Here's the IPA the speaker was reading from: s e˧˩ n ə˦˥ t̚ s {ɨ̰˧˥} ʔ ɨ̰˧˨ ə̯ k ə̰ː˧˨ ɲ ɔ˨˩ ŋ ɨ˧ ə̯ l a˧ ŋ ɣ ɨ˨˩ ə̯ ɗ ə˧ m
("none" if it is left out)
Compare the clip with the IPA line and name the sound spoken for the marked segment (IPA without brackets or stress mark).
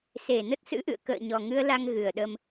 ɨ̰˧˥